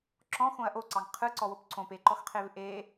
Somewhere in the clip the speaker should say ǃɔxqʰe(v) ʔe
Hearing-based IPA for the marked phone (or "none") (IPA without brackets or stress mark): v